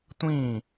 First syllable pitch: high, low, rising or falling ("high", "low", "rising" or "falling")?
falling